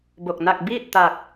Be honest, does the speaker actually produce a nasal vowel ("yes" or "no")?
no